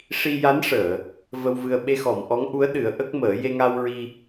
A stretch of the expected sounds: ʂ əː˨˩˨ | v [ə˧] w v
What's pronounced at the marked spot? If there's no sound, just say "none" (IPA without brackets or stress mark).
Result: ə˧